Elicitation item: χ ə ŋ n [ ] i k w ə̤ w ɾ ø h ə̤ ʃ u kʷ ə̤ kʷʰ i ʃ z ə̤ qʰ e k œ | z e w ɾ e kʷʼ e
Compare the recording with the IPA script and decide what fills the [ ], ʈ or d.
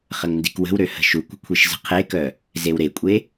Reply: d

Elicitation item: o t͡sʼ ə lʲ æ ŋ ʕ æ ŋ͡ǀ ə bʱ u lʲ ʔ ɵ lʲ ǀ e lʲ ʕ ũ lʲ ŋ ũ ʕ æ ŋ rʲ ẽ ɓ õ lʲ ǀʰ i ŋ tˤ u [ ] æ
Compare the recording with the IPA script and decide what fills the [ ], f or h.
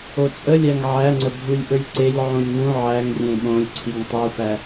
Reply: f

